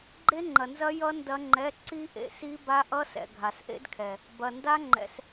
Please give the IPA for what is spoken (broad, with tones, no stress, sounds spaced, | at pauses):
ɡ͡ǃ e˦˥ ŋ͡ǃ ɐ˨ n z ɐ˦˥ j ʌ˦˥ n d ɐ˦˥ ŋ͡ǃ ɛ˧˥˧ ǀ i˦˥ ʔ ḛ˨ s i˦˥ b a˦˥ ʔ ʌ˦˥ s ɛ̰˨ ɡʱ a˨ s ʔ ḛ˦˥ d kʰ ɛ˨ | b ɐ˨ n d a˦˥ ŋ͡ǃ ɛ̰˨ s